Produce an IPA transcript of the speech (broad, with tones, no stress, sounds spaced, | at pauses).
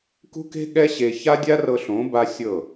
k ṳ˦ k e̤˦ ɠ ɛ˦ ɕ e˧ ç a˦ dʲ a˦ r ɤ˧ ɬ õ˨˦ b a˦ sʲ ɤ˦˨